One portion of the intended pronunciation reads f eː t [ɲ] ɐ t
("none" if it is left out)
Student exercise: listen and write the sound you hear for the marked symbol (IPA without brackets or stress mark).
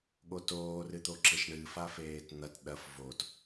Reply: n̪